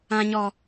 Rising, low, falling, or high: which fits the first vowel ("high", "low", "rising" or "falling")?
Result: high